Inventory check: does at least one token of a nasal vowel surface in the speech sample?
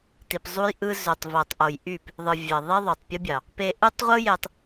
no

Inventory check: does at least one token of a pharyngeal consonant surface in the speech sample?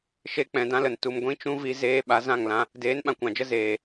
no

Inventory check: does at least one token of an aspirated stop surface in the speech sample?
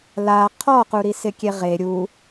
yes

